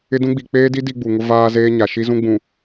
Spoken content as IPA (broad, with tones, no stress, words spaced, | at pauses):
ɪ˦dũ˦ɡ͡bi˨ k͡peː˦di˦ di˦ɡ͡bu˨ŋʊ˦ vaː˦ zeː˦ɲa˨ ʃi˦zũ˦ɡ͡bũ˨